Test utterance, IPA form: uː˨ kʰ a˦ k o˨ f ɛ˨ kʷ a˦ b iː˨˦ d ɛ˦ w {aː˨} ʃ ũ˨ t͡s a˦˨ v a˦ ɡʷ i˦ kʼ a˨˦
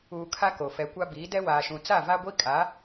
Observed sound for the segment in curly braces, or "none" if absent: aː˨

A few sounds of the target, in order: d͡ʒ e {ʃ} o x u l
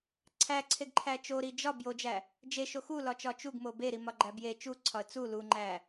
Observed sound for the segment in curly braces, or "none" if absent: ʃ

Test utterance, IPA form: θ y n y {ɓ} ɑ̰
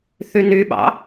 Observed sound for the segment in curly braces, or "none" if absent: ɓ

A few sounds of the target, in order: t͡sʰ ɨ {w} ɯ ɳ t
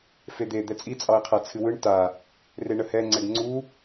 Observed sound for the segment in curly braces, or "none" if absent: w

